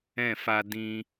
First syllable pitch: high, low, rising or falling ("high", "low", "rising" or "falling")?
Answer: falling